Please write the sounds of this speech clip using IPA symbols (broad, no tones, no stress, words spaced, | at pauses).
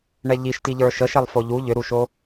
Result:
ɳɛʎiʃti ʎə˞ʃəʃɛlˠ foʎu ʎʏɾuʃo